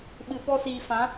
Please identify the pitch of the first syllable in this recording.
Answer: low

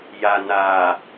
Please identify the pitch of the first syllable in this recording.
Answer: low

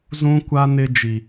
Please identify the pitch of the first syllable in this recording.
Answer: high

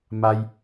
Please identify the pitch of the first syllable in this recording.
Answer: high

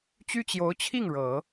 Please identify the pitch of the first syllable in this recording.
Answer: high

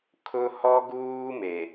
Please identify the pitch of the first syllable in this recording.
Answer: high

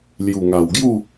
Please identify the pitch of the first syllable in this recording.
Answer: low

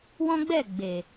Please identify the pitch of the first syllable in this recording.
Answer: high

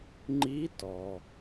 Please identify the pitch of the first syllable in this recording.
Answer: rising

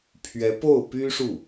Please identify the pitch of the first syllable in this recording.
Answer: rising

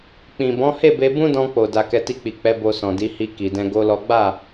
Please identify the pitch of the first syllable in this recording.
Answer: low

